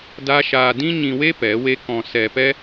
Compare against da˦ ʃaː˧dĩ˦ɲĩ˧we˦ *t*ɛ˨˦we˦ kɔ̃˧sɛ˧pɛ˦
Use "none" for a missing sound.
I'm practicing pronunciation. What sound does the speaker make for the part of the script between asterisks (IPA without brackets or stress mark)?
p